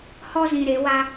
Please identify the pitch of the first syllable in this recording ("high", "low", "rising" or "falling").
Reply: high